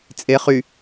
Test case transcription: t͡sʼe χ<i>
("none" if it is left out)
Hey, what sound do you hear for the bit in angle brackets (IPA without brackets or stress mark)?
y